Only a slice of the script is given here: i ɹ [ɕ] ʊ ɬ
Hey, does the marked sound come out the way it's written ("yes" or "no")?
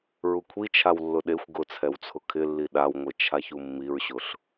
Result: yes